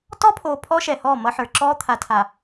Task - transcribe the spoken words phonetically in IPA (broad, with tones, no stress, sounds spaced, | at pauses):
t ɔ˦ pʰ oː˨ pʰ ɔ˦ ʃ ɛ˨ h ɔː˦˨ m ʌ˦ ħ ə˞˨ ǁ ɔː˦ t̪ʰ a˨ tʰ a˨